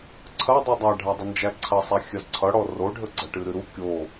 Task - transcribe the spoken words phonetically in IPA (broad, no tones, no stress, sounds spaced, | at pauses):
ǀʰ ɐ dˤ u dˤ a ɖʱ a dˤ ə n d͡ʒ æ ǀʰ ɐ sˤ æ xʲ ɐ z ǀʰ ʌ ɽ ɔ r o ɖʱ ə ɡ͡ǀ ɐ ʈ ɨ ɾ ɨ ɾ u kʲ o